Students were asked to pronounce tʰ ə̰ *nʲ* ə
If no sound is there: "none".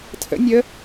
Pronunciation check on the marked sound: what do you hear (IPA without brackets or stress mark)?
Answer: nʲ